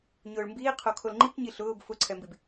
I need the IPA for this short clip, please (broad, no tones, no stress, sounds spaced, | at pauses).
ɲ ʊː ɭ m b iː qʰ o kʰ o l ŋ͡ǃ i k ɲ i ɬ ʊː b f ʊ ǀʰ ɛ m b i b